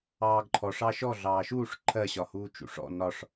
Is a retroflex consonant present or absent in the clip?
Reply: present